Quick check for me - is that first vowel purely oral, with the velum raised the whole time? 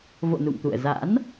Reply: yes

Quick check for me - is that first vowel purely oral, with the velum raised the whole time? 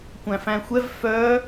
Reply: no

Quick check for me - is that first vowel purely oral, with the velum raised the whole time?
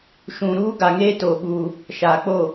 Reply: no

